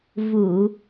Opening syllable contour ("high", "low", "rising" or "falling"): low